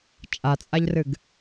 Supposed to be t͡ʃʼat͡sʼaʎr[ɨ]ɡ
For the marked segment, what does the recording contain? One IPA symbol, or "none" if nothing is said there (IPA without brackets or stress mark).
ɨ